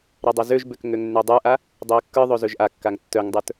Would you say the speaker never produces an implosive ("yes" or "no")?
yes